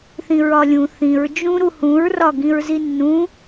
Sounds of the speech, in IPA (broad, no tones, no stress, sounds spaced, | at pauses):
θ ĩ ɹ ɒ lʲ ũ θ ĩ ɹ d͡ʒ ũ ɾ u h ũ ɹ r ɒ ɡ ĩ ɹ z i nː ũ